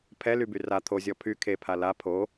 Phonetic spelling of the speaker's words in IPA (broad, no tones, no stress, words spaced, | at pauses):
pʰɛlyby ra t̪ʰozʲɔ pʰy kʰepʰa la pʰo